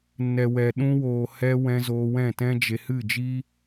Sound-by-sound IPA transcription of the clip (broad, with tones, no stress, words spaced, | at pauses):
nɛ˨wɛ˨ ɗũ˧woː˨ hɛ˦ wɛ̃˧ zoː˧wɛ̃˦˨tɛ̃˦d͡ʒe˧ hɨ˦˨d͡ʒi˦